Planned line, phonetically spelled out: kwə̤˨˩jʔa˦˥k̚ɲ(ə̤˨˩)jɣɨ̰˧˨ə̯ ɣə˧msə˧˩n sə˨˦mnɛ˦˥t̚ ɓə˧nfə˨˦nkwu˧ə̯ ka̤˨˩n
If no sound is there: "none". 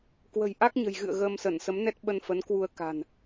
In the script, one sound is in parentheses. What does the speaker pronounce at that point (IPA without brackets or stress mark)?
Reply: ə̤˨˩